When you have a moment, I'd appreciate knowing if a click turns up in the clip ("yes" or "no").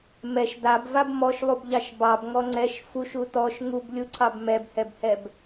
yes